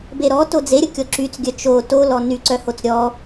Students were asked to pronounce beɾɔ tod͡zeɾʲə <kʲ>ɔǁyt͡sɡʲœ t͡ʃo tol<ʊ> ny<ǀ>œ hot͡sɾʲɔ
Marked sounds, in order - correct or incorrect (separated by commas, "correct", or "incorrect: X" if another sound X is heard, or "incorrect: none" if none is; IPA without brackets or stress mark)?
correct, incorrect: ɔ, correct